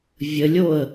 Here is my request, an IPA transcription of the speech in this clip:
vʲ ə lʲ o ə̯

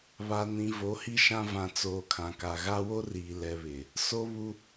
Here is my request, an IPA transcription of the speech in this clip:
β a˨ n ĩ˨ v o˨˦ h i˦ ʃ ã˦ v ã˨ t͡s oː˨ kʰ ã˨ k a˨ ɣ a˦ w o˦ r iː˨ l ɛ˨ β ɪ˨ | s o˦ β u˦

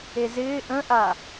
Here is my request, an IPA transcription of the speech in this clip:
e z ɪː ʔ ə̃ ʔ a

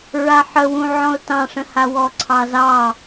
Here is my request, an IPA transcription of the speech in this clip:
ɹ a ħ ə w ũ ʕ ɔ̃ ʊ̯ t ɑ̃ ʂ ə̃ h a w ɔ ǀʰ ɑ z ɑ

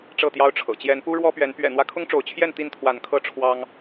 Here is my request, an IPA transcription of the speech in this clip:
ʈ͡ʂ ɤ˥˨ t̪ j ɑ˦ ʊ̯ ʈ͡ʂʰ ɤ̰˨˩ t͡ɕ j ɛ˨˦ n p u˦ ɻ w ɔ˦ p ɥ ɛ˨˦ n p ɥ ɛ̰˨˩ n̪ w ä˦ kʰ ʊ˦ ŋ ʈ͡ʂ o˨˦ ʊ̯ t͡ɕʰ j ɛ˥˨ n t̪ i˥˨ n t̪ʰ w a˨˦ n kʰ ɤ˦ ʈ͡ʂʰ w ɑ˦ ŋ

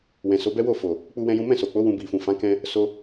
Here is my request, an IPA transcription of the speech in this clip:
w ɛ̃˨ s o˨˦ b ɛ˦ w o˦˨ f o˨ | k͡p u˦ w ɛ̃˦ j ũ˦ m ɛ̃˦˨ s o˨ k͡p o˨˦ w ũ˧ b i˨ f ũ˨ f ã˨˦ k ɛ̃˧ | s o˧

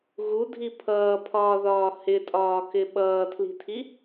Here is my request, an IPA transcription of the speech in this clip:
ɣ u dʱ i pʰ ʌː pʰ ɒː ð ɒː h ɪ tʼ ɒː k ɪ ɓ ʌː tʰ l i̤ tʰ i

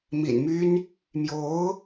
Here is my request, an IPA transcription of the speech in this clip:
m ḭ˨˩ n m y˥ n | m j o˧˥ ʊ̯

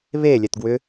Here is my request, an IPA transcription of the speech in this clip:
β e lʲ ɛ t ɡ w ʏ

